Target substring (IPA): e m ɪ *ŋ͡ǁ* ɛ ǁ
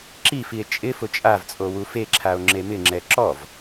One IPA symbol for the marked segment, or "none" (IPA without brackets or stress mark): ŋ͡ǁ